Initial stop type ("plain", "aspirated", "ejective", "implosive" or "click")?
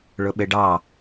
implosive